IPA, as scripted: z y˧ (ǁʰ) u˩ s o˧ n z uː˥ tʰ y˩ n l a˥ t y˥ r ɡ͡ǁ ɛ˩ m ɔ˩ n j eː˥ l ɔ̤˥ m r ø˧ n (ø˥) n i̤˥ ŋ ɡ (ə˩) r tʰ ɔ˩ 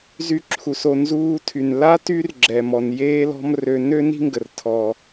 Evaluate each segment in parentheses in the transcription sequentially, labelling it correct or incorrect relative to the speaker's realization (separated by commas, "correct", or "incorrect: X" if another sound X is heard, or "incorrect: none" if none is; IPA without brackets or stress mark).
correct, correct, correct